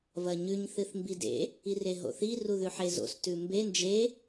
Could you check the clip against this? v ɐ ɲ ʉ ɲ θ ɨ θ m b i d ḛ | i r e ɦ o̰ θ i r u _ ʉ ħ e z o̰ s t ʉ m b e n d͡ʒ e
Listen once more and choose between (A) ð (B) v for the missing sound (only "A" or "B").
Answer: A